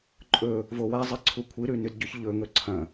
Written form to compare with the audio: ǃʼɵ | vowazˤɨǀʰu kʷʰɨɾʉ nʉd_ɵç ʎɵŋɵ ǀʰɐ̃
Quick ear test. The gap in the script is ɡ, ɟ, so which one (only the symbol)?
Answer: ɟ